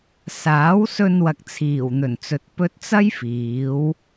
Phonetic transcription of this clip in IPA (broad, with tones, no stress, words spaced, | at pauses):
saː˨˥wsɵ˧nwɐ˨k̚ t͡sʰiː˨˩wn̪ɵ˨˩nt͡sɵ˨t̚ pɵ˧t̚t͡sɐ˥jfiː˨˧w